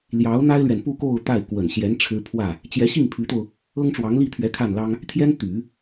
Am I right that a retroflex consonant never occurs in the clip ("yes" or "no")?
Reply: no